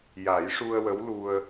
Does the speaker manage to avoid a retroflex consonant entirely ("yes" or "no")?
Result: no